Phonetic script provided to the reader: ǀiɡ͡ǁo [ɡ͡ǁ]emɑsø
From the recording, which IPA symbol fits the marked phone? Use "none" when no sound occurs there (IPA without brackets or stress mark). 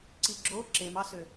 ǁ